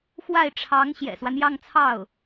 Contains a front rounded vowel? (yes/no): no